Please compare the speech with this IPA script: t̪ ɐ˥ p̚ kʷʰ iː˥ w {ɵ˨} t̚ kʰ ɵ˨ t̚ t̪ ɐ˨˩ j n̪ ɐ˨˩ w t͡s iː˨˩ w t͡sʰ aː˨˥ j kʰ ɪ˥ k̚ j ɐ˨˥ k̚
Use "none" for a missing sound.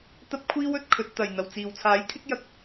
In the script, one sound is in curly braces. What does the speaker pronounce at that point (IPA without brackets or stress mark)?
ɵ˨